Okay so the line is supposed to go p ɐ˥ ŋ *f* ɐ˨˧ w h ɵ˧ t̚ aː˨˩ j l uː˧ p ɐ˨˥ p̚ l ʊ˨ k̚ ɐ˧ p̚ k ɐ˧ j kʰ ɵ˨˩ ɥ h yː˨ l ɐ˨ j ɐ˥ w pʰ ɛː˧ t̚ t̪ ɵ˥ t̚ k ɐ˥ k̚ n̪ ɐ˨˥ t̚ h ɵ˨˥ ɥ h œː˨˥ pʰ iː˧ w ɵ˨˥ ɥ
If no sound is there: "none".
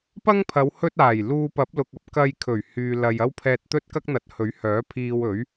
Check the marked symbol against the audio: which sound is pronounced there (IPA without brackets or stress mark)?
pʰ